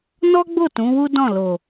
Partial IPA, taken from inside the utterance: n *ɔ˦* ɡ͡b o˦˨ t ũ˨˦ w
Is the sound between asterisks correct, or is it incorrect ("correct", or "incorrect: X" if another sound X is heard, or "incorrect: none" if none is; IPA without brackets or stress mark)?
correct